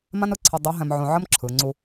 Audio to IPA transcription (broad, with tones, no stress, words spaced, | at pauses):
mã˥nɯ˧˥ǀʰɤ˧ dˤʉ˧˥ɦɛ̃˧m ʕõ˧ʕə˥m ǁʰɯ˩˧ ŋ͡ǀu˧